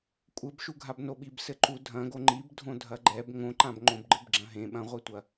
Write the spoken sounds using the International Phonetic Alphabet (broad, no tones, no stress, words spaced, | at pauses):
kʷʼɘbʃuɡʱab noɓibsɘǃu dʱɐ̃ɡo ŋ͡ǃib dʱõdʱɐɡ͡ǃɛb ŋõǃãb ŋ͡ǃõbɡ͡ǃɨbɡ͡ǁɐ̃ɦẽ ɓɐ̃ʁʷetʷɐ